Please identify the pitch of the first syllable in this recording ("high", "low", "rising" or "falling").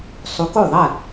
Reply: rising